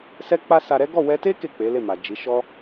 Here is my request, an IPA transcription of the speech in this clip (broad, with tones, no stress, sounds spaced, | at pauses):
s ɛ˦ k͡p a˦ s a˧ ɾ ɛ˦ ɡ ɔ˦˨ w ɛ˧ t e˦ k e˦˨ k͡p e˨˦ l e˦˨ m a˨ d͡ʒ i˨˦ ʃ ɔ˦